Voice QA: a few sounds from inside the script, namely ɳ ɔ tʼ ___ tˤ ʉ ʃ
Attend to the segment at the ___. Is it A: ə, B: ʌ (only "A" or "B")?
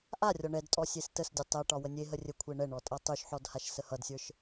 B